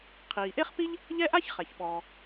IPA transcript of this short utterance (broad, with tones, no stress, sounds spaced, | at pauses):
qʰ iː˩ ʔ e˥ χ p i˥ ʎ | ʎ ɛ˥ ʔ a˥ ç χ ɛ˩ ç ɓ ɔː˩